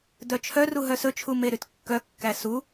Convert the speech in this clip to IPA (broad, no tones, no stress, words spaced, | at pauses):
dœt͡ʃʰœru ɦœsɵt͡ʃʰu meɾytkːœkːæ su